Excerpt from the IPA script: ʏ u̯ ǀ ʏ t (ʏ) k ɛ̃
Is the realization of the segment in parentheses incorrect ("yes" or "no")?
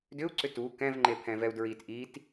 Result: yes